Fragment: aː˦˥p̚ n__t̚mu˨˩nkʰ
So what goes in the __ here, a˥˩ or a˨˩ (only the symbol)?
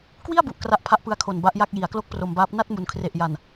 a˥˩